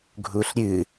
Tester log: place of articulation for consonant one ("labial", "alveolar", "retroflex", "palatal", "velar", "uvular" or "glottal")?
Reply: velar